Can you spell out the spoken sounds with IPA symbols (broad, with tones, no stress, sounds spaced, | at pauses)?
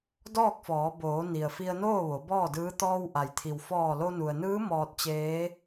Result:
d ɔː˥˨ k̚ f ɔː˩˧ b oː˩˧ n i˩ ə̯ f i˧ ə̯ n oː˥˨ ʋ o˩˧ b ɔː˥˨ d ɯː˧˥ t̪ ɔː˧ w ʔ a˩ j t̪ʰ i˩ w f ɔː˧˩ l o˧ n u˩ ə̯ n ɯː˧˥ m ɔː˧ t̚ t͡ɕ eː˧˥